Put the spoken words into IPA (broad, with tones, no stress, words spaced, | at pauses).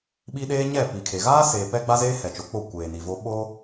ɓi˦ ɗeː˦ɲɛ˦˨pi˨kʰe˨ ɣaː˦seː˨ pɛ˦ɡ͡ba˦zeː˦ hɛ˨t͡ʃo˨k͡po˦˨ kʷeː˨ni˨vo˦ ɓo˦